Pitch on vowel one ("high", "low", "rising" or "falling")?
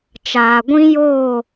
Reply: low